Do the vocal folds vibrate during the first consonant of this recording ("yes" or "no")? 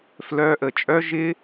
no